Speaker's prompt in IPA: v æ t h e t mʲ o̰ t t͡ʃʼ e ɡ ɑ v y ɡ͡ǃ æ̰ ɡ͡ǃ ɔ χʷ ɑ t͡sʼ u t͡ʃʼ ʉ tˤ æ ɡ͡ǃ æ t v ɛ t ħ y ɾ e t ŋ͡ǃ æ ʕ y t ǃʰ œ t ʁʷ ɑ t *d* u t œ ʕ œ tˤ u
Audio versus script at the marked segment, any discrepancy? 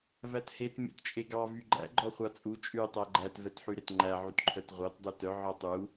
yes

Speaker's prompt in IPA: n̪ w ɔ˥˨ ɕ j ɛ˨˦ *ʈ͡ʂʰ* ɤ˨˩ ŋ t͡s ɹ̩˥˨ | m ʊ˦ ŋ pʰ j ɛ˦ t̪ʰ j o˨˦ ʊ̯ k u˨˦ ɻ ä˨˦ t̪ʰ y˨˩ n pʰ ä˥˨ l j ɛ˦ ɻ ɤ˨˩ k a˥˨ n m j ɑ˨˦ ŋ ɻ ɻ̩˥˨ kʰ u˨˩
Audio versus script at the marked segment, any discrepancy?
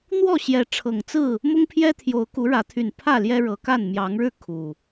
no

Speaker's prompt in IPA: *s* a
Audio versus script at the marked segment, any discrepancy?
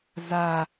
yes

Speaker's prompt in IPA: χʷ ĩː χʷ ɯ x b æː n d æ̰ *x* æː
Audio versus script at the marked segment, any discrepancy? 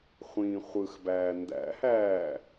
yes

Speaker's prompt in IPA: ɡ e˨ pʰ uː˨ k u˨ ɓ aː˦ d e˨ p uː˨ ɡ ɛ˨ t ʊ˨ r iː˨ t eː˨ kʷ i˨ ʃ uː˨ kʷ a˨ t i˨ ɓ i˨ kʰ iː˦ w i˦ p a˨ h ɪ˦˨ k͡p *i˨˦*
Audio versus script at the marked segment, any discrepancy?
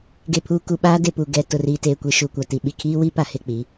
no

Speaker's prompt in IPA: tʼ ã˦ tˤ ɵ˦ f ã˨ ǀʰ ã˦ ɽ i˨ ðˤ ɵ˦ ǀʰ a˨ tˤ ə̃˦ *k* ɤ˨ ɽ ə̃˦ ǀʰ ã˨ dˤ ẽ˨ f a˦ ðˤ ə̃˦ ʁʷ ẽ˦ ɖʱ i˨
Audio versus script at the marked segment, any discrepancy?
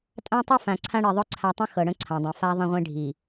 yes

